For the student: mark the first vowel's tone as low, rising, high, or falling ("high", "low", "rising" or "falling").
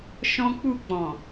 high